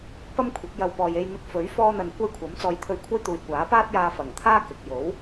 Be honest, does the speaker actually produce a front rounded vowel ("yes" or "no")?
no